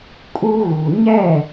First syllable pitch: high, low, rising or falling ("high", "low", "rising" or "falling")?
high